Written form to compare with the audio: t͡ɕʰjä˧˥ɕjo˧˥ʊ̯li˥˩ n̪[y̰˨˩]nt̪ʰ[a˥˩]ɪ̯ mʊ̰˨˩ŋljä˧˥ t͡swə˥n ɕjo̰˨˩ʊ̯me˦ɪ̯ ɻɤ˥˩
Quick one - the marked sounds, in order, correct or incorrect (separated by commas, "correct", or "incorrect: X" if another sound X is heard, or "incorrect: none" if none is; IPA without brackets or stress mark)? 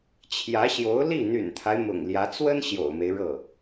correct, incorrect: a˦